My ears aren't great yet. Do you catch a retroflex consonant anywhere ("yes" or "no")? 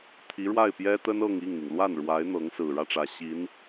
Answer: yes